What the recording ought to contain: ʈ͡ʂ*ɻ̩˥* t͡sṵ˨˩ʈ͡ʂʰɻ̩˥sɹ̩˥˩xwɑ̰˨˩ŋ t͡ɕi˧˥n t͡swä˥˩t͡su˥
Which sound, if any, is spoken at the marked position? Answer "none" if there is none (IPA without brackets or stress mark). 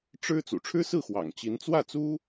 ɻ̩˥